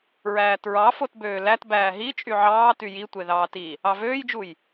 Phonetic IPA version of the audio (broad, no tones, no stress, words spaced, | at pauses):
ɹæːtɹɑ fotbøːlæt bæːɦi t͡ʃʼyʕɑː tyjitʷe ðɑːti | ɑvøːjd͡ʒuj